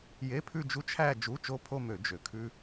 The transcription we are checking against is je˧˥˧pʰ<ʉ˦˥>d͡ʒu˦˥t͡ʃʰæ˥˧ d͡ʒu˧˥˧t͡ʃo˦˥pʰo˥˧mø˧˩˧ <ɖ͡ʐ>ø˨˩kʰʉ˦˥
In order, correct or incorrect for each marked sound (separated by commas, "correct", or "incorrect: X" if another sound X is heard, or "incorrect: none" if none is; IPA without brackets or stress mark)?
incorrect: ʉ˥˧, incorrect: d͡ʒ